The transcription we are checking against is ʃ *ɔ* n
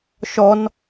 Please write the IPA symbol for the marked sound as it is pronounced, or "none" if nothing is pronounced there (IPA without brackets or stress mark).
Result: ɔ